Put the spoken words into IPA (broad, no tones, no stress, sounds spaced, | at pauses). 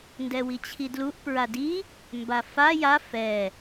n d ɛ w i t͡ɕʰ i d l u ʔ p ɹ a d i | m b a f a j a f ɛ